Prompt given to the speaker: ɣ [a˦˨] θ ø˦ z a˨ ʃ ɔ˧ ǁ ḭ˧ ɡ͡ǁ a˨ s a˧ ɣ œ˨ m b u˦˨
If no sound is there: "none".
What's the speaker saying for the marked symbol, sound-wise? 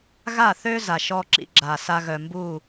a˦˨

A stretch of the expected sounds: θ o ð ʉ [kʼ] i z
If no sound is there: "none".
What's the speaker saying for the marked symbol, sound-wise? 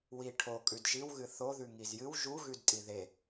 ŋ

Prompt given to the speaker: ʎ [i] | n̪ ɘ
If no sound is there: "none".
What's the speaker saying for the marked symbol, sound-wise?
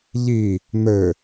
i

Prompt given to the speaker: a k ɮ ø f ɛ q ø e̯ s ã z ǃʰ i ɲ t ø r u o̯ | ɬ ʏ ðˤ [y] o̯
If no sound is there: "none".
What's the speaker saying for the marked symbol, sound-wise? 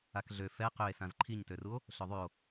y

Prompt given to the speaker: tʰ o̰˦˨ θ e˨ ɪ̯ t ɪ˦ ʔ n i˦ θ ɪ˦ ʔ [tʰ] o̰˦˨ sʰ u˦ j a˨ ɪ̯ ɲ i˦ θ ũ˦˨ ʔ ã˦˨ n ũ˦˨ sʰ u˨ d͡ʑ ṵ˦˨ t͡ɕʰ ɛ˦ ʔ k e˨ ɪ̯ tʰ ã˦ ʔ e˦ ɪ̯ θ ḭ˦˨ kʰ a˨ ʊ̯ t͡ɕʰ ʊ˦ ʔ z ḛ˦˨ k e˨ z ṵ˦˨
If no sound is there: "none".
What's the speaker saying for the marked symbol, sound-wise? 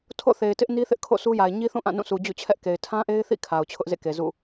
kʰ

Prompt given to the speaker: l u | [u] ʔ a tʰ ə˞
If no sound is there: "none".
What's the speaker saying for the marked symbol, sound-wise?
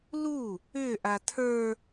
ʏ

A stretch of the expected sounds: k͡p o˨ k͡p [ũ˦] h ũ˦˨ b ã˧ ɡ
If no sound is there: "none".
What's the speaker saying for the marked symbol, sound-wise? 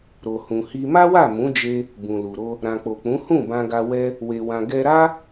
ũ˨˦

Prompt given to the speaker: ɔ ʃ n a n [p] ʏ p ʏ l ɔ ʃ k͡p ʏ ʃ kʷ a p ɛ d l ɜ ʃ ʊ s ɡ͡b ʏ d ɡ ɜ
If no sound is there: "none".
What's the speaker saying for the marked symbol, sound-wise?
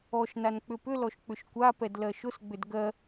k͡p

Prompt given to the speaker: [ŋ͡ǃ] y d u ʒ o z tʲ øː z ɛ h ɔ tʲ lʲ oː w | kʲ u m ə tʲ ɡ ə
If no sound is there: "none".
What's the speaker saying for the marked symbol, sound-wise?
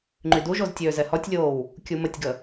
ŋ͡ǃ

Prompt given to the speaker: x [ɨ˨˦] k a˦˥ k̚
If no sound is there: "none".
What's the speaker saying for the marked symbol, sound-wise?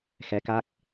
ɛ˨˦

